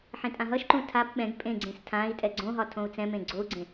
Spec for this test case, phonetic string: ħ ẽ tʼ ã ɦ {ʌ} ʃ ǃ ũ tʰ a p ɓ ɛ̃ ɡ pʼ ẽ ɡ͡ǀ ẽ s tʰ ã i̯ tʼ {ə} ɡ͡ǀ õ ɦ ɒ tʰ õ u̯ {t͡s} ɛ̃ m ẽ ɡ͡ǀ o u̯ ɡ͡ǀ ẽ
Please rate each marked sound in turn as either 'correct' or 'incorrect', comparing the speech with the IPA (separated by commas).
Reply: correct, incorrect, correct